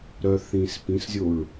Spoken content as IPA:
ɾ œ θ ĩ s p ĩ s zʲ o ɹ

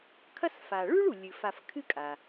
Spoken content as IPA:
kʰ ɐ˦ s f a˩ ɭ ʉ˥ ɭ u˩ lʲ ɨ˩ f a˨ f kʰ ɨ˦ kʼ a˩

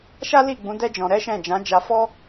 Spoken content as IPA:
ʃ a˦ l i˦˨ ɡ͡b ũ˨˦ d ɛ˦ d͡ʒ ɔ̃˧ ɾ ɛ˦ ʃ ɛ̃˦˨ d͡ʒ ã˨˦ d͡ʒ a˧ f ɔ˦

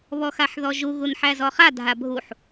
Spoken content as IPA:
β ɔ x a ħ ð ɔ ʒ u ɣ u n ħ æ z ɔ χ a dʱ a bʱ u ħ

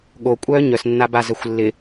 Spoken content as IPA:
ɠ o kʷʼ œː ɲ œ s nː a b a z œ xʷ lː ɪ

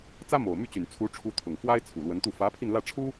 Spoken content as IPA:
t͡s ä˥ m o˨˩ ʊ̯ m y˥˩ t͡ɕ y˨˩ n t͡sʰ u˧˥ ʈ͡ʂʰ u˧˥ t̪ʰ ʊ˨˩ ŋ f w a˥ ɪ̯ t͡sʰ u˨˩ l w ə˧˥ n t̪ u˥˩ f ä˧˥ pʰ i˧ n l ä˥˩ ʈ͡ʂʰ u˥

